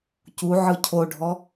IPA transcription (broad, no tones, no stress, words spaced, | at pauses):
cuʕɯ cʰoɖʱɔ